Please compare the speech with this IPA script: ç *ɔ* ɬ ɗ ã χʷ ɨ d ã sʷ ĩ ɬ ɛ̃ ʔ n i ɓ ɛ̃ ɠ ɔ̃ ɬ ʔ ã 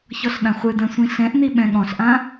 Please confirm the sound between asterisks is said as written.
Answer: yes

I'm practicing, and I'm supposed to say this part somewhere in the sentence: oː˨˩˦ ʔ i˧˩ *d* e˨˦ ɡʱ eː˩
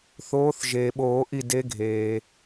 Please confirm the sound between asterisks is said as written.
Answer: yes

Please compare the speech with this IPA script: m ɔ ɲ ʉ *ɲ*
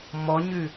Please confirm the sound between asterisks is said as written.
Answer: no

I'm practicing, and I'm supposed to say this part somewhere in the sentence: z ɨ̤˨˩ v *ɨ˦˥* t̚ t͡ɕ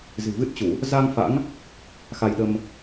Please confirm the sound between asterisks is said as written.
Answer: yes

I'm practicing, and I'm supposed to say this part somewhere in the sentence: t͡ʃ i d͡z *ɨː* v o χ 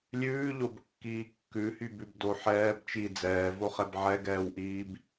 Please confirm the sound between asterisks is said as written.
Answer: no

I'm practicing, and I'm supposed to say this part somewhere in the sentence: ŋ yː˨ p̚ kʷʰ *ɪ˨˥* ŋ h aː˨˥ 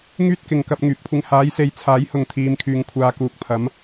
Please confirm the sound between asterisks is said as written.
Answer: no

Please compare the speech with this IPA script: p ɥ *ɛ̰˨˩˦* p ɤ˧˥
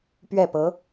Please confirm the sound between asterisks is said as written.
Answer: no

